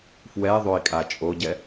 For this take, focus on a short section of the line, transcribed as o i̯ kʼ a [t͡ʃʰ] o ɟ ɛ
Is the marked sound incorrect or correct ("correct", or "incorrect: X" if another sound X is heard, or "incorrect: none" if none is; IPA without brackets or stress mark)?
incorrect: t͡ʃʼ